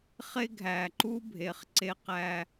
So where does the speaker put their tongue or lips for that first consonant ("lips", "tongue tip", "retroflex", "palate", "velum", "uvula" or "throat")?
uvula